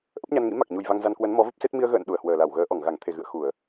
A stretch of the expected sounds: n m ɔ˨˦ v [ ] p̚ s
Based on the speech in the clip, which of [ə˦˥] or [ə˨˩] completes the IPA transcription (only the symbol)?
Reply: ə˦˥